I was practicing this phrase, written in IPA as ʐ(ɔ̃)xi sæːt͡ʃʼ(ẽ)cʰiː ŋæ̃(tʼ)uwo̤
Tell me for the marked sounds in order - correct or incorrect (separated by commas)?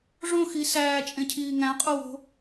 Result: incorrect, correct, incorrect